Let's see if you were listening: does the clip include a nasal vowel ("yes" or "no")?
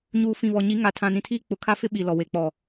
yes